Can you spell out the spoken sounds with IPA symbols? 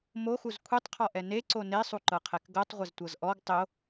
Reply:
moxuz kʷʰitˤqʰɔʔɛ neǀo nesˤuǃɤqʰɛk ɡɤtˤʁʷɪztʷɤz ʔɔɡ tˤɪo̯

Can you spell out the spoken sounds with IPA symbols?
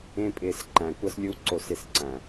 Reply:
ẽ˦pʼɪː˧s ǃæ̃˨kʷʌ˦slʲu˦ǀo˧s ɪ˧sǀæ̃˨

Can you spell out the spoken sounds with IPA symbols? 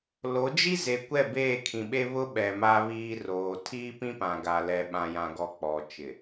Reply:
lo˨˦d͡ʒi˦ ze˨kʷɛ˦˨ beː˦˨kʰĩ˨ɓe˦ βʊ˦ ɓɛ˨ma˦βiː˦roː˨ tʰiː˦pĩ˦pã˨ ɡa˨ lɛ˨ ɓã˨jã˨ɡɔ˨ k͡pɔ˨ t͡ʃɪ˨

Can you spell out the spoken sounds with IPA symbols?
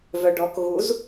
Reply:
vœɖɔk ɣuz

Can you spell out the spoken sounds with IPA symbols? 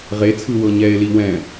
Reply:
ʁet͡sʰɯ wɤɲɛe̯li wɛ̃

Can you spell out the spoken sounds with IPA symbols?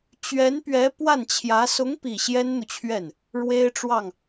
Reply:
t͡ɕɥɛ˧˥npɥɛ˧˥ pwa˥˩nt͡ɕʰjä˧˥ sʊ˧˥ŋ pi˥˩ ɕjɛ˥nn̪u˨t͡ɕʰɥɛ˥˩n | ɻwe˥ɪ̯ʈ͡ʂwɑ˥˩ŋ

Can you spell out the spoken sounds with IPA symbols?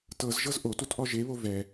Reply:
tɤzʒɤz ʔotutʔɔ ʒeβo vɛ

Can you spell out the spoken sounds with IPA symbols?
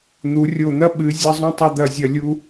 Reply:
n̪u˩˧rʲo˧˩n̪ɐ˥ ɓɨ˩˧ zʲɐ˧zˤũ˧tˤɐ˧ d̪ɐ˧˩zʲɐ˧˩lʲu˧

